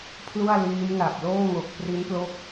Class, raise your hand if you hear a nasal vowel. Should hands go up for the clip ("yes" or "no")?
no